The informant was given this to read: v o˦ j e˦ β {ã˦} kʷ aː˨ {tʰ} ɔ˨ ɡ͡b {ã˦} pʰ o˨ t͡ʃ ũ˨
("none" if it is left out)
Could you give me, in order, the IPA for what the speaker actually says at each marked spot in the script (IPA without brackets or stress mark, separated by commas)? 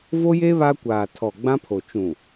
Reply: a˦, tʰ, ã˦